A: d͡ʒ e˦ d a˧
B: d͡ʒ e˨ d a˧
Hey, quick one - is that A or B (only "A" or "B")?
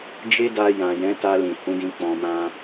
A